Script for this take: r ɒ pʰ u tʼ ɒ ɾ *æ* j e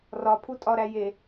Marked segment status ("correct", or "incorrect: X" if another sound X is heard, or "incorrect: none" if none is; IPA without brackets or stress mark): correct